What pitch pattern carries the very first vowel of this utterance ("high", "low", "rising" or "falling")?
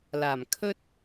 low